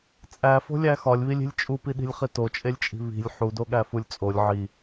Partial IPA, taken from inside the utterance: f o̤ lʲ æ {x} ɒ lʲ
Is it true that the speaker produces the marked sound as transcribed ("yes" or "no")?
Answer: yes